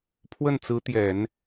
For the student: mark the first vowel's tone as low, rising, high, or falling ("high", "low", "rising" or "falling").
falling